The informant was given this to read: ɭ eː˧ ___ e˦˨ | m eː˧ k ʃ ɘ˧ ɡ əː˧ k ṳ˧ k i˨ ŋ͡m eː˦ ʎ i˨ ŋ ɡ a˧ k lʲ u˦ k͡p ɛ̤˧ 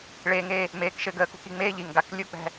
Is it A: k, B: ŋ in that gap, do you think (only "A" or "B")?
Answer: B